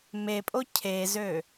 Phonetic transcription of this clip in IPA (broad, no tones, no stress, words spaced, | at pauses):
mepʼo cʰezø